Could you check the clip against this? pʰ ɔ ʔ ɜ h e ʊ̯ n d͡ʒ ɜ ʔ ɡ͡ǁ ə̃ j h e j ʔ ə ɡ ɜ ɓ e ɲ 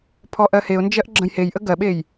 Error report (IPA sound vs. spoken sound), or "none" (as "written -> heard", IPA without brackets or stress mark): ɲ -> j